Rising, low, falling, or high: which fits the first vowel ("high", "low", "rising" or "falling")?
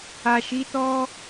low